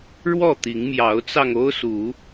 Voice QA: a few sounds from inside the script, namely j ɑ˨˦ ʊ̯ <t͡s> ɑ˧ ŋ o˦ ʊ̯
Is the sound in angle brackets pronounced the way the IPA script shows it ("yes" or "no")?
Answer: yes